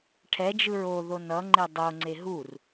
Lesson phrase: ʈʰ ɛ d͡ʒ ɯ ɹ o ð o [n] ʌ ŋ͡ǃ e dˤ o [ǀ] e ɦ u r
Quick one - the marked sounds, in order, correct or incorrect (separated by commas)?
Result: correct, incorrect